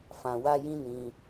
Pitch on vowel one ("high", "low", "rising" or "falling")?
low